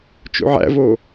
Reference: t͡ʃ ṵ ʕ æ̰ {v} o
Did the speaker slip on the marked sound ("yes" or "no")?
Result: no